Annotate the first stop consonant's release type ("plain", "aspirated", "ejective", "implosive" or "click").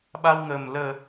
implosive